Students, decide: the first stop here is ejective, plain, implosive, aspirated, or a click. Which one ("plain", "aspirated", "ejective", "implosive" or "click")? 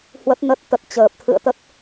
plain